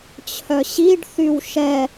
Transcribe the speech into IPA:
t͡ɕʰ œ ɕ i ɖ θ y w ʃ ɛ

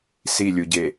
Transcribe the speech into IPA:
s i lʲ u ɟ e

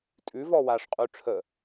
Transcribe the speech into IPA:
tʼ ʉ v ɔ w a ʂ qʼ ʉ ʈ͡ʂʰ ə

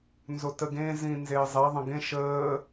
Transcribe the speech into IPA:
n z o t ə ɡ ẽ z ĩ n z eː zˤ e ðˤ ə̃ ɡ ẽ ʃ əː

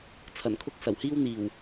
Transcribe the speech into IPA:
t͡sʰ ɐ˨˩ n kʰ ʊ˥ k̚ s ɐ˨˩ w h iː˥ w n̪ iː˨˩ w

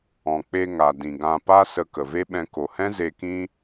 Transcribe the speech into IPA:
ɔ̃˨ k͡p e˧ ŋ a˨ d ĩ˨ ɡ ã˧ p a˦ s ə˧ k ə˨ v e˦ ɓ ɛ̃˧ k o˨ h ɛ̃˦ z e˧ k ĩ˦

